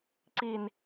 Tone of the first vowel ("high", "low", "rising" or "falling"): low